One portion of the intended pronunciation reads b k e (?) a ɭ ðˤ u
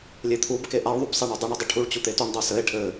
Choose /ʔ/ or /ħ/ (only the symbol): ʔ